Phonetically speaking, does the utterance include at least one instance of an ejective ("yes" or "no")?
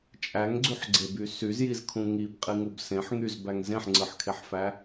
yes